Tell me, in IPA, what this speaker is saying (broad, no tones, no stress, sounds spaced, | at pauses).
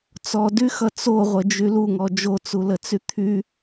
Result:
t͡s ɔ d y x ʌ t͡s o ʁʷ ə d͡ʒ y l u ŋ ɔ d͡ʒ o t͡s u l ə t͡s y t̪ʰ y